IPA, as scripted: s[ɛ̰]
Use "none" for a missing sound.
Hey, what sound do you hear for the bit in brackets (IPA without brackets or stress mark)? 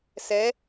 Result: ɛ